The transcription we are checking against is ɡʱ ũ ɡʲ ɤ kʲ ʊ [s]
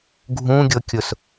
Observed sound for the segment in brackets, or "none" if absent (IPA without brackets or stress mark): s